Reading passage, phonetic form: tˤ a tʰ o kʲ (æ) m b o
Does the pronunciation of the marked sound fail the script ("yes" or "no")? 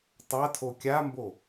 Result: yes